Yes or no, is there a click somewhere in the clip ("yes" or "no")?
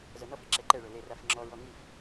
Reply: yes